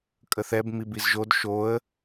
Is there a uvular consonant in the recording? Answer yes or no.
no